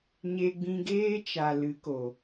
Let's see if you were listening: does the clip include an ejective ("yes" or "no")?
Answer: no